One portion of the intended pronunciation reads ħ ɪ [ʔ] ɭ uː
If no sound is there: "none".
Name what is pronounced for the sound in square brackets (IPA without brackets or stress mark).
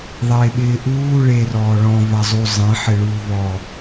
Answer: none